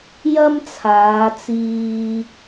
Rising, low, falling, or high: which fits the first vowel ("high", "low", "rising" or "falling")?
high